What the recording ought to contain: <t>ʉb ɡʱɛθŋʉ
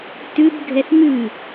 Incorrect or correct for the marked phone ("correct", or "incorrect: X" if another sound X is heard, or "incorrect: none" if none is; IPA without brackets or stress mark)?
correct